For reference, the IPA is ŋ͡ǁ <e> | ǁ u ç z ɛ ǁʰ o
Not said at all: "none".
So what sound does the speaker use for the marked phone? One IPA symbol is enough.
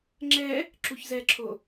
ɛ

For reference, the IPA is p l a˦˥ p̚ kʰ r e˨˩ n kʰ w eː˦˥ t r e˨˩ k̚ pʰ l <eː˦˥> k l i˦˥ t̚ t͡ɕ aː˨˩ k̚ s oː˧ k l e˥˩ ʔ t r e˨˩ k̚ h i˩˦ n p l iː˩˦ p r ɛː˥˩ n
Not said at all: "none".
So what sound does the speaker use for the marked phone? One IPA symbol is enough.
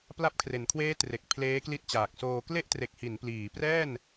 eː˦˥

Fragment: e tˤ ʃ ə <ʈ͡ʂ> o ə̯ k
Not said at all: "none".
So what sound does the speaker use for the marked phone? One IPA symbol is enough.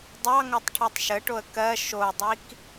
ʈ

